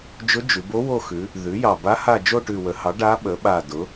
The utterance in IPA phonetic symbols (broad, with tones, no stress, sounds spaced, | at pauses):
d͡ʒ ʊ˧˥ d͡ʒ ʉ˩˧ b o˧˥ w o˦˨ x ʉ˩˧ | ð ʉ˩˥ j ɑ˨˩ b a˧˥ h a˦˨ d͡ʒ o˦˨ ʈ ʉ˨˩ w ə˩˧ h ɑ˩˥ ɖ a˧˥ ɓ ə˩˥ ɓ a˨˩ d ʊ˩˧